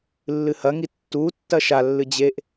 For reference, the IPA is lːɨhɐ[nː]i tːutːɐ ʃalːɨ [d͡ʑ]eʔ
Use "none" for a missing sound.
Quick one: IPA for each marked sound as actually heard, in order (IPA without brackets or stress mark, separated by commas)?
ŋ, d͡ʑ